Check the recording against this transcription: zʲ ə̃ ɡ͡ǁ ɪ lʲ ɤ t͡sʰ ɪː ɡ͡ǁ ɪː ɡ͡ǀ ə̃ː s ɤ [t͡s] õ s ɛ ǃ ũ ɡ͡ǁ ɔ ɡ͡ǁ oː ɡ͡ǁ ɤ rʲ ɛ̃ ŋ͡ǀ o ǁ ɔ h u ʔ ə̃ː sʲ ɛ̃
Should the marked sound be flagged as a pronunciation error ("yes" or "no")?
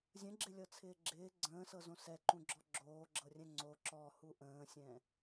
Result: yes